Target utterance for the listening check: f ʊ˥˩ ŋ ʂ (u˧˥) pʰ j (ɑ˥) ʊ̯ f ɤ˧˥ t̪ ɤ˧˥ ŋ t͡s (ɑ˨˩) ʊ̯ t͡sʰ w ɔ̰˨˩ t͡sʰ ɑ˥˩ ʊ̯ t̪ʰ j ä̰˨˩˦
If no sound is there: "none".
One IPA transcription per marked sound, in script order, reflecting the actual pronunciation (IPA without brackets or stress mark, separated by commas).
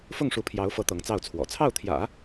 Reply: u˧˥, ɑ˧˥, ɑ˥˩